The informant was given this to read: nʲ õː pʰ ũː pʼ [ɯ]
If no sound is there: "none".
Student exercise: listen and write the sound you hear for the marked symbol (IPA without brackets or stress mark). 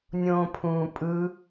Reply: ɯ